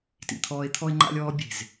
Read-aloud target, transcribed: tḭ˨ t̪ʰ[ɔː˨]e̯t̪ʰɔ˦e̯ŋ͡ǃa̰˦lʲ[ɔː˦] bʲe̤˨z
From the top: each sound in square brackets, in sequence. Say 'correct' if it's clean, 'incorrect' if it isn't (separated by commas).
incorrect, correct